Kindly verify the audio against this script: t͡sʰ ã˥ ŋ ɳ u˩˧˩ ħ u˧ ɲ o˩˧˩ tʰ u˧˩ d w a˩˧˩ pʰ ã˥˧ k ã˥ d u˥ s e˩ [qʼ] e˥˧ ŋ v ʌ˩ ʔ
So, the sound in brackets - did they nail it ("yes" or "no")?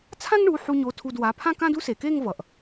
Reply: no